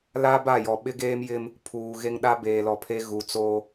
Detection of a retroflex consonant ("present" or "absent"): absent